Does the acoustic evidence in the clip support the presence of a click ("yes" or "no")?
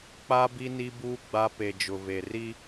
no